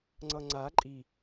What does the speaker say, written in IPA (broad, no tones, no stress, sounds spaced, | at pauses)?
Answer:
ŋ͡ǀ ʌ ŋ͡ǀ a ǃʼ i